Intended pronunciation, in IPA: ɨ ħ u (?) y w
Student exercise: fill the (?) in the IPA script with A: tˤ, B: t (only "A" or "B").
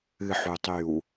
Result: A